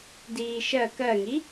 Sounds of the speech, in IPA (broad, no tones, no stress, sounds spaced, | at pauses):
d iː ʃ ɜ k ɜ ŋ i